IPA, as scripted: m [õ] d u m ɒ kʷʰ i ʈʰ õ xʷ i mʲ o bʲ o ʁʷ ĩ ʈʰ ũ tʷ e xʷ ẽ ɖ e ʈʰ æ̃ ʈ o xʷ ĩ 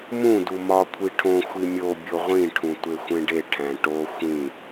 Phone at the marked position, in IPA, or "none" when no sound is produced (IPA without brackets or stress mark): ũ